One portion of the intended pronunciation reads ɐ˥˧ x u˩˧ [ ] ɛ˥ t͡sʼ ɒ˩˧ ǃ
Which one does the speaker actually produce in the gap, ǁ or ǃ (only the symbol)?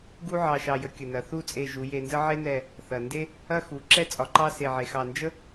ǁ